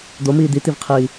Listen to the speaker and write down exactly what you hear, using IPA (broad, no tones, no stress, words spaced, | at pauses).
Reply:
d̪omiː d̪it̪ivqʰiː